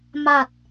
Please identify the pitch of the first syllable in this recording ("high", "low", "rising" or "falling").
low